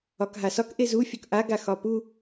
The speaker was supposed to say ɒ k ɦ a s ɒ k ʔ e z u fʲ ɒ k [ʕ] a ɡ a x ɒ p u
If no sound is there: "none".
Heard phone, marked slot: ʔ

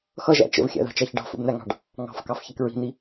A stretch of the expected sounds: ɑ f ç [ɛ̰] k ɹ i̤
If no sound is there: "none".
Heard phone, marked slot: ɛ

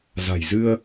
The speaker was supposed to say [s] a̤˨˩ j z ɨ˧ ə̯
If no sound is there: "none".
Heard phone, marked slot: z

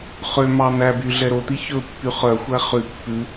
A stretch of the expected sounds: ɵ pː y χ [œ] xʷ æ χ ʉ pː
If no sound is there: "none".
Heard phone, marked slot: œ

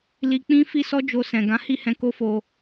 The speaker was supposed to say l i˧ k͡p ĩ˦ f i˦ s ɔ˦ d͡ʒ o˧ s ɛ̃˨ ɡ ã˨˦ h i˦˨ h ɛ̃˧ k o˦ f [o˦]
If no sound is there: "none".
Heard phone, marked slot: o˧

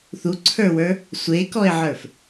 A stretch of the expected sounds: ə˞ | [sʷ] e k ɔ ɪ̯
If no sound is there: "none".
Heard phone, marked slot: sʷ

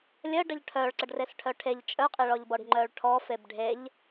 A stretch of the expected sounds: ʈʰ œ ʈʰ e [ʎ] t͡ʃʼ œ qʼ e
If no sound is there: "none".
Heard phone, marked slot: ʎ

